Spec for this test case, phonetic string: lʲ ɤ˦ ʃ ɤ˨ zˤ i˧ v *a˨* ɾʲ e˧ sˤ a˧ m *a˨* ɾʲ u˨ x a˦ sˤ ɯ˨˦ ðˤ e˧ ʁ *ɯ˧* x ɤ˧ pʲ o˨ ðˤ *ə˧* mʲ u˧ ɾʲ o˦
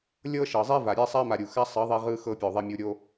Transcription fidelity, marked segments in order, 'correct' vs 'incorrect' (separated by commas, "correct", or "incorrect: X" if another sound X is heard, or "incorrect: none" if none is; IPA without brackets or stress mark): correct, correct, correct, incorrect: ɛ˧